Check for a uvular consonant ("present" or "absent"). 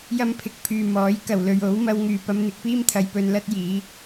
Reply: absent